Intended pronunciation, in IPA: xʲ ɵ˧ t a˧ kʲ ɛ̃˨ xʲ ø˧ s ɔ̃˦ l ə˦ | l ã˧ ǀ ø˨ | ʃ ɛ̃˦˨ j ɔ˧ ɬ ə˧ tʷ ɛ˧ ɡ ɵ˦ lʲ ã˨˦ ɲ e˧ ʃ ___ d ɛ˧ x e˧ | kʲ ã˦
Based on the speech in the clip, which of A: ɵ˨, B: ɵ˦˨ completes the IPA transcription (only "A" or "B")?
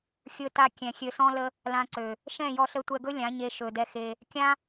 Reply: A